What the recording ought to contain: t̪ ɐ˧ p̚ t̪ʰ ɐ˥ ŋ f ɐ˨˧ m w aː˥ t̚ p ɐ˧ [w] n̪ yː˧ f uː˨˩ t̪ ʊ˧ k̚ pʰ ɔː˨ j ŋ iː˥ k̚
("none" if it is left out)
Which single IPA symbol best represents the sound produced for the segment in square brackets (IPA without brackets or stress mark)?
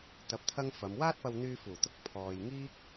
w